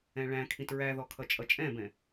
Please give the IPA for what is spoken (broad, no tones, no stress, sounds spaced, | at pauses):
ɛ̃ ɭ æ̃ kʰ ĩ t ɹ æ ð ɔ kʰ ʌ t͡ʃʼ ʌ t͡ʃʼ ɛ̃ b ɛ̃